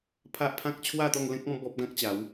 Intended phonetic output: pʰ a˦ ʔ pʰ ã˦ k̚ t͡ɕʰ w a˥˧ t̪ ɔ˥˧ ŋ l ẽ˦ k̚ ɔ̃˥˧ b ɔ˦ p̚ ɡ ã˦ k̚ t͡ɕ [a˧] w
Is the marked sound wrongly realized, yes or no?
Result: yes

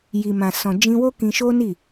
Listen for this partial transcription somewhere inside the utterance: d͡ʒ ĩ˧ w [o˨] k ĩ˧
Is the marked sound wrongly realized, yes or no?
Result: yes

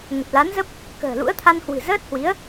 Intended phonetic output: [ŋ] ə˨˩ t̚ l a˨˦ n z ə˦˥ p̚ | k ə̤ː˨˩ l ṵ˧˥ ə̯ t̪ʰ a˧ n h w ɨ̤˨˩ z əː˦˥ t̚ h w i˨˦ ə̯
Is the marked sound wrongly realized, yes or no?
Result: no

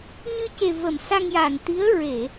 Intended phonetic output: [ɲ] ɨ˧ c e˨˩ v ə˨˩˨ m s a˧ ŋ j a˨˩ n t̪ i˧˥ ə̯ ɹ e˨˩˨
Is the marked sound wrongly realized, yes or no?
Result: no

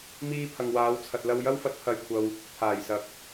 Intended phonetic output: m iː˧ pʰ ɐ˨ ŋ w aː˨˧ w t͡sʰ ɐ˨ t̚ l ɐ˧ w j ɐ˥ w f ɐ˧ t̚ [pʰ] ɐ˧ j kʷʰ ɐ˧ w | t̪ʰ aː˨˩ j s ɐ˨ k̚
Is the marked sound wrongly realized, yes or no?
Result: no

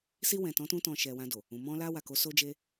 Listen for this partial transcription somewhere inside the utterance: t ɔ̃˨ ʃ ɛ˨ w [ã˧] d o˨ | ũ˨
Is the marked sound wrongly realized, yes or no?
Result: no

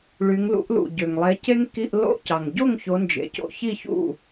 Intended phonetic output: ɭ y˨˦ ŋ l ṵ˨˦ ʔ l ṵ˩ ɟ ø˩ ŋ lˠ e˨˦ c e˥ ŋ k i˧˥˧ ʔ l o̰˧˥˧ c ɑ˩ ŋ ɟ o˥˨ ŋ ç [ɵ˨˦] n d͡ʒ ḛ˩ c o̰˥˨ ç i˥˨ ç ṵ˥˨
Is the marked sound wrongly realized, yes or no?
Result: yes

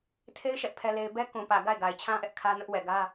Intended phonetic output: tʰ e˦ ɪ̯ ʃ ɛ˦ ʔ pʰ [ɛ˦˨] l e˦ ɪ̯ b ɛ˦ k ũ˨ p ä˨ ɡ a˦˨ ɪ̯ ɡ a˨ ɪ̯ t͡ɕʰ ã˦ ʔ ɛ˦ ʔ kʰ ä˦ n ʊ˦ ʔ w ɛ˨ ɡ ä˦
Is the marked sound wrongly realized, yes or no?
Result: yes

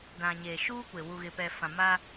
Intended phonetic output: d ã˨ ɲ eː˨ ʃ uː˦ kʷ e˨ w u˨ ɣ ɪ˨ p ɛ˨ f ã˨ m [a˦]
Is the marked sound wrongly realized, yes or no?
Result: no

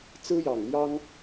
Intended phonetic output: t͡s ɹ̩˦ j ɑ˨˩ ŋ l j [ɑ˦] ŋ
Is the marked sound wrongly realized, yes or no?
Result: no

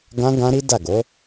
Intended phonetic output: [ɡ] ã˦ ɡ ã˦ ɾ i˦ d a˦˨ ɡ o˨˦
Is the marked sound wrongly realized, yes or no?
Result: no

